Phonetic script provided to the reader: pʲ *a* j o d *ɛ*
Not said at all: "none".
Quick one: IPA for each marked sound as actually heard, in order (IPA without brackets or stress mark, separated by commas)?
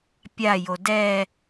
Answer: a, ɛ